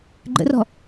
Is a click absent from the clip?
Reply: no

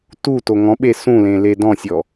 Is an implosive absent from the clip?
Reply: no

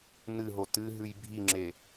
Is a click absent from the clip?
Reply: no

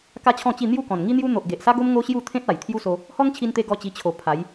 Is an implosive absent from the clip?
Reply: yes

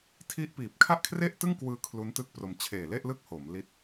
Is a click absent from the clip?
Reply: yes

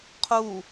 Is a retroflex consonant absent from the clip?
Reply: yes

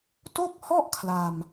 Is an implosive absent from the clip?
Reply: yes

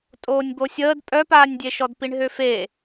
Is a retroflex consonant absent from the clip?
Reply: no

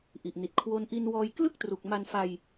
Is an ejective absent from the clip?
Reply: yes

